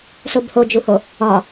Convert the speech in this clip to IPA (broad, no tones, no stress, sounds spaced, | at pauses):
s o b h o d͡ʒ u h o | ɒ